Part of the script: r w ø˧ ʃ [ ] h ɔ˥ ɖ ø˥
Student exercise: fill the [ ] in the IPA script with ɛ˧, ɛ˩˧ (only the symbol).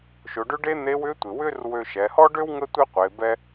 ɛ˩˧